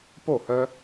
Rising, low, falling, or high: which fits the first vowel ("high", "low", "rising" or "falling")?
falling